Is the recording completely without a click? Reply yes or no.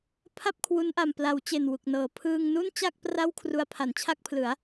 yes